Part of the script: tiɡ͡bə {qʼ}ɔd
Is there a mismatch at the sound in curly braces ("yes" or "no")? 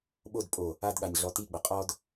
no